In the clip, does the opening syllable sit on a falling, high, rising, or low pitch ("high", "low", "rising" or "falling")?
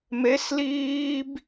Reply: rising